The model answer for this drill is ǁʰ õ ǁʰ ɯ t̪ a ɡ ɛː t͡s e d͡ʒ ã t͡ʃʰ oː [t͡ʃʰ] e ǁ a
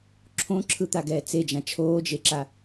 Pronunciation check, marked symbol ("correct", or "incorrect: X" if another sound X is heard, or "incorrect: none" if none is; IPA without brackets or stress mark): incorrect: d͡ʒ